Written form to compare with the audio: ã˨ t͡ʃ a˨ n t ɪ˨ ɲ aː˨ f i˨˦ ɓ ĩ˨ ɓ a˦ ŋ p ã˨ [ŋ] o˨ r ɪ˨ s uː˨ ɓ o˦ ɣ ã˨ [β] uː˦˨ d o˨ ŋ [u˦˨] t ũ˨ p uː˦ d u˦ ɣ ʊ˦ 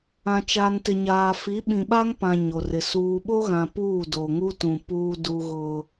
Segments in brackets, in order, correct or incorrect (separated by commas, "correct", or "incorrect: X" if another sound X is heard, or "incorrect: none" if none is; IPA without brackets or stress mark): incorrect: ɲ, incorrect: p, incorrect: u˦